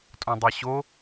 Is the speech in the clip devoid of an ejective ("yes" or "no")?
no